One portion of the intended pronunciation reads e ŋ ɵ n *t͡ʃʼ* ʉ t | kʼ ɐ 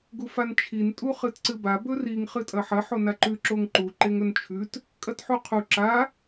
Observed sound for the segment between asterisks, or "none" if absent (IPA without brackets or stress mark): t͡ʃʰ